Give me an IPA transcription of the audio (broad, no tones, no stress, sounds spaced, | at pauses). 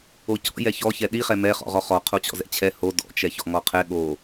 o c ɔ̰ j ɛ ç ɔ ç ɛ ɗ i χ ɛ m ɛ χ ɔ̰ ʁ ɔ χ ɔ qʰ o t͡ɕ ɔ̰ z ɛ̰ t͡ɕʰ ɛ h o d ɔ̰ t͡ʃ ɛ ç ɔ̰ ŋ ɔ qʰ ɛ ɠ o